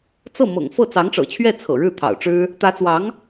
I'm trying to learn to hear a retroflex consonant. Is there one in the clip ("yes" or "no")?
yes